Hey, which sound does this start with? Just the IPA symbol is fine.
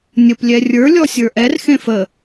nʲ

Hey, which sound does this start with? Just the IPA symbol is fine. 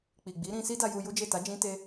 k͡p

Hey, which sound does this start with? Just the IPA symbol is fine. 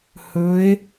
h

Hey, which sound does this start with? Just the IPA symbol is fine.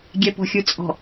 ɡʲ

